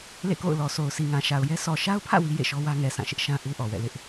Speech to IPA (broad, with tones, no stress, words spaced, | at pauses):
lḛ˦˨ko̰˦˨ʊ̯lɔ˨so˨ʊ̯ si˨ŋã˨ʃa˨ʊ̯jɛ˦ sɔ˨ʃa˦ʊ̯pʰä̰˦˨ wi˦jḛ˦˨ʃɔ˦wä˦ ŋɛ˨sã˦˨ ʃɪ˦ʔʃã˦ ʔu˦ʔɔ˨wɛ̰˦˨lɪ˦ʔ